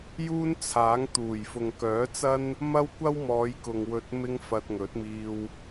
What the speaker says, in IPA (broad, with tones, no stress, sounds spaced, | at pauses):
j uː˥ n t͡sʰ aː˨˥ ŋ t̪ uː˨˩ j f ʊ˨ ŋ k œː˨˥ t͡s ɐ˥ n | m ɐ˥ w kʷ ɐ˥ w m ɔː˨˧ j k ʊ˨ ŋ w ɵ˨ t̚ m ɪ˧ ŋ f ɐ˧ t̚ ŋ ɵ˨˥ t̚ m iː˧ w